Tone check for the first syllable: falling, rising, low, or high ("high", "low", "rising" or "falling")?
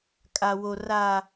low